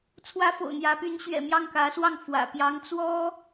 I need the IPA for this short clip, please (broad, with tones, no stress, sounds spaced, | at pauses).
t͡sʰ w ä˥ f o̰˨˩ ʊ̯ n̪ j ä˧˥ p y˧˥ n ɕ ɥ ɛ̰˨˩ m j ɑ˥˩ ŋ k ä˧˥ s w ɑ˥˩ ŋ f w ä̰˨˩ p j ɑ˧˥ ŋ t͡s w ɔ˥